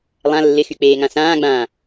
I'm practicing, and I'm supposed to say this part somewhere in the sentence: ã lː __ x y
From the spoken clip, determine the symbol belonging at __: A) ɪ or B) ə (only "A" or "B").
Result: A